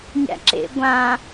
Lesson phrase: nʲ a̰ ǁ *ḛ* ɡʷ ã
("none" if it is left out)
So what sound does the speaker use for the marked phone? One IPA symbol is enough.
ḛ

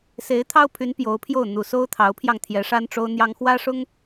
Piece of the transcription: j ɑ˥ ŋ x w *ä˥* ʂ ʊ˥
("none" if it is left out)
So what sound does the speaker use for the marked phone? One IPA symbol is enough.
ä˥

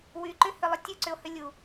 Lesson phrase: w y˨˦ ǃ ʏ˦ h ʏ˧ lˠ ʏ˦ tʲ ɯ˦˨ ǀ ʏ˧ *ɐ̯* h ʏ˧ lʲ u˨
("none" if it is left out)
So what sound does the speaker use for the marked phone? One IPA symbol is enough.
o̯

